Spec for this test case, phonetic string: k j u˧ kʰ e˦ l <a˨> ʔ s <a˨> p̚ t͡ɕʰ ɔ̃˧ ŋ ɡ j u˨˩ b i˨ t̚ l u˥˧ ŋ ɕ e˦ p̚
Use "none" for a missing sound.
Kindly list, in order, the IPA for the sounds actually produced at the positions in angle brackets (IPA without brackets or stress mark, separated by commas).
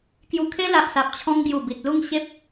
a˨, a˨